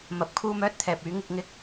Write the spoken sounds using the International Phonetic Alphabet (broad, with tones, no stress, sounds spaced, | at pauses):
m ɐ˨˥ p̚ kʰ uː˥ m œː˥ t̚ t̪ʰ ɛː˨ p̚ yː˨˥ ŋ ɪ˨˥ k̚ ŋ ɪ˥ k̚